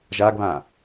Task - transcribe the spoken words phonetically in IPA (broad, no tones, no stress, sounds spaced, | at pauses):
ʒ a ɡ β ã